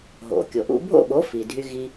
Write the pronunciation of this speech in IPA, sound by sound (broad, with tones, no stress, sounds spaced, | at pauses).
ɦ o̰˩ kʲ o˩ ʔ ṵ˧ bʱ o̰˥˩ ɓ o˩˥ f i˩ dʱ y˧ ɣ i˧